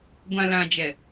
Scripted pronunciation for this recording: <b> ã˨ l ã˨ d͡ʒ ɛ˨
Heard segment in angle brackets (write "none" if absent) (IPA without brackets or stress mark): ɡʷ